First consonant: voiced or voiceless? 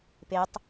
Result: voiceless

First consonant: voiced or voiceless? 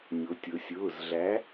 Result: voiced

